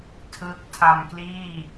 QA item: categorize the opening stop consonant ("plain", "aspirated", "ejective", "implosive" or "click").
aspirated